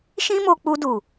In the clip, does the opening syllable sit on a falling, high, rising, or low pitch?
high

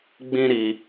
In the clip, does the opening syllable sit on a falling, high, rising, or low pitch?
high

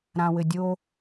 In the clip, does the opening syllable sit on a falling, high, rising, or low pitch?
low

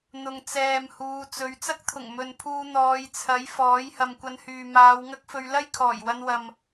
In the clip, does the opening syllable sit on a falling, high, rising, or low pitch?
low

